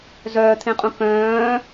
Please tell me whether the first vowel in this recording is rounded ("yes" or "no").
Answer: yes